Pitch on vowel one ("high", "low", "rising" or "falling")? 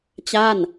falling